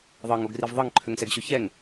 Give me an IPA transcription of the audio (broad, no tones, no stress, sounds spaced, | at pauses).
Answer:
ðˤ ɤ ŋ o ɡ r i v ðˤ ɤ ŋ ǃʰ ø ŋ s ɛ ɡ ɕ ø ç ɛ ŋ